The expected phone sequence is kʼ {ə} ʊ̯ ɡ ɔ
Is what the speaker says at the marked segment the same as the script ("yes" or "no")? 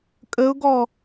yes